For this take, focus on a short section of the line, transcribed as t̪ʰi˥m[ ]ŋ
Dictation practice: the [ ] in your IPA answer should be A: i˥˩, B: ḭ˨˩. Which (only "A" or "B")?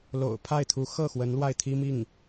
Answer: A